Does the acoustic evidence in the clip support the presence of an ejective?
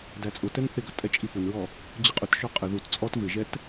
yes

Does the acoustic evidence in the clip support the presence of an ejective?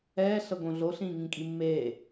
yes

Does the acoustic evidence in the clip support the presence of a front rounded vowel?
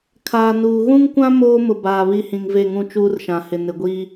no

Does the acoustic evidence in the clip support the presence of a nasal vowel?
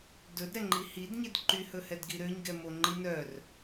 no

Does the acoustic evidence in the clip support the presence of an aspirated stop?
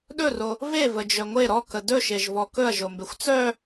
no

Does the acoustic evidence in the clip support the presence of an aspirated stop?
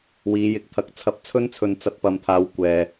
yes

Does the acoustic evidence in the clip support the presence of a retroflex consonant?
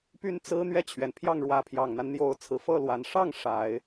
yes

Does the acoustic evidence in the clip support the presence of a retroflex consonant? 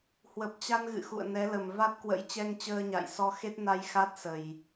no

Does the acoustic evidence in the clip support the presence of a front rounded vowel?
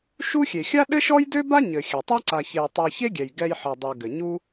yes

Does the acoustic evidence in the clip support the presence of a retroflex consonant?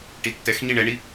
yes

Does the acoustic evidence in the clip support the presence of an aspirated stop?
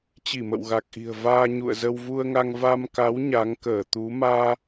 no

